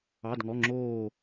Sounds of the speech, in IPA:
ɑ˩˧˩ d ŋ ɔ˩˧˩ ŋ͡ǁ oː˧˩

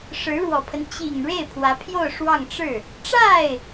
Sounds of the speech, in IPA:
ʂ ɻ̩˧˥ ɻ w ɔ˨˩ pʰ ə˦ n t͡ɕ i˨˩ ŋ ɻ e˥˩ ɪ̯ pʰ w ä˧˥ pʰ j o˥˧ ʊ̯ ʂ w ɑ˥˧ ŋ ʈ͡ʂ ɻ̩˥˩ | ʈ͡ʂ a˥˩ ɪ̯

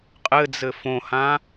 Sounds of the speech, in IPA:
qʼ ɘ d͡z ɘ f õ h ã

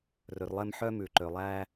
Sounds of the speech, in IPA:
r ɵ˨ r lˠ ɛ˦ m ħ œ˥ m ʉ˩ ǃ ø˩ lˠ æ˦

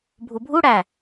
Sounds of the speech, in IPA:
bʱ u bʱ u ɽ æ

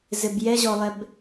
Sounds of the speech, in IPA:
z ɘ b j ɛ ʑ ɔ lˠ ɛ b

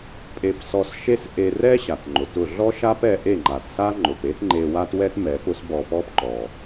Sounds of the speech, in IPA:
pʼ e˧ p s ɔ˧ s ʃ e˦ s ʔ e˧ r ɛ˦ ɕ a˨ t ŋ͡ǃ ʊ˨ t ʊ˦˨ ɮ ɔ˦ ʃ a˦ p ɛ˧ ʔ e˦˨ ŋ͡ǃ a˨ t s a˦ ŋ͡ǃ ʊ˨ p e˦ t ŋ͡ǃ e˧ w a˦ t w ɛ˦ t m ɛ˨˦ p ʊ˦ s b ɔ˧ p ɔ˦ p ǃ ɔ˨

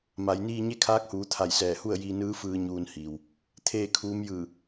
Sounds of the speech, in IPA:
m a˩˧ j n iː˧ ɲ e˥˨ kʰ aː˧˥ k̚ h uː˩˧ t̪ʰ a˧˩ j s ɛː˧˩ h u˥˨ ə̯ j iː˧ n ɯː˧˥ f ɯː˧ ɲ uː˧ n h iː˩ w | t̪ʰ eː˥˨ kʰ uː˧˥ m j ɯː˧˩

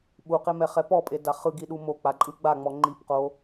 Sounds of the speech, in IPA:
ɓ u q e m ɛ χ ɛ p ɔ pʼ e d a χ ɯ ɡ i ɗ u m o k͡p a ǃʼ ɯ ɡ͡b a ŋ͡m ɔ ŋ͡ǃ i p q o

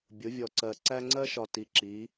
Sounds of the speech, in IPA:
bʲ ʊ˨˦ vʲ ɔ˨ ǀ ɜ˨ ǀ æ˦ ŋ͡ǀ ɜ˦ ʃ ɒ˨ t i˨ ǁ i˨˦

